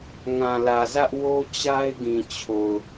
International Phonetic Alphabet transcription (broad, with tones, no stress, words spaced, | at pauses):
ŋã˨lä˨zä˦ʔwo˦ t͡ɕa˦ɪ̯ɡĩ˨ t͡ɕʰo˨ʊ̯